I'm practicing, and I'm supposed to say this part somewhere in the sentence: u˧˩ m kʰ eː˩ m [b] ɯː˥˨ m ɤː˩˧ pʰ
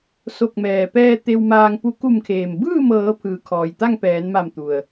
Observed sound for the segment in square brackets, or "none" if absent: b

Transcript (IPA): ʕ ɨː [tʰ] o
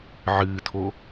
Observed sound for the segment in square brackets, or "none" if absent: tʰ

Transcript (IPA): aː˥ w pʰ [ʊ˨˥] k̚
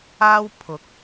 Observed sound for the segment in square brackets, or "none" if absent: ʊ˨˥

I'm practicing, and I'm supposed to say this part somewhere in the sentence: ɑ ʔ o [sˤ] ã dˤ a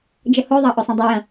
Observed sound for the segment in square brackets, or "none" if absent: sˤ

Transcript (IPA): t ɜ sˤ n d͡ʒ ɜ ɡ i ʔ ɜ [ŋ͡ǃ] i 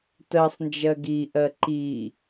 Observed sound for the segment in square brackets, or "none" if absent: ǃ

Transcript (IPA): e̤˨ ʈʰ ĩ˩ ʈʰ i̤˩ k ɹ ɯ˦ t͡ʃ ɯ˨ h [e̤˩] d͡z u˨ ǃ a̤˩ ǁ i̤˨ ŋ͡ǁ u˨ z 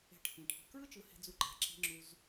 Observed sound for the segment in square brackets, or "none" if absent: e̤˨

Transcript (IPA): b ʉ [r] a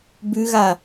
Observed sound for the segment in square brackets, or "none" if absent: ɣ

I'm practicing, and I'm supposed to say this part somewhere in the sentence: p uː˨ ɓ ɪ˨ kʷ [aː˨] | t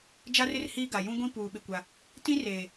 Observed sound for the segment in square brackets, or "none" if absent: a˨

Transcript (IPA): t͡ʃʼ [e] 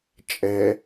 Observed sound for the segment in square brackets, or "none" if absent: ɛ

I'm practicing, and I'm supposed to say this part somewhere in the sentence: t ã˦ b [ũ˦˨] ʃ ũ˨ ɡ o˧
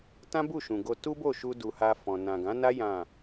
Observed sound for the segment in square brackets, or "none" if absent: u˦˨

